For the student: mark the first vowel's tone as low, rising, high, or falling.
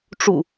low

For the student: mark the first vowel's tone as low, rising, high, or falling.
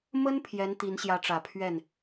high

